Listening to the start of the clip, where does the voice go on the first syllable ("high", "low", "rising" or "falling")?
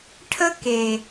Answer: high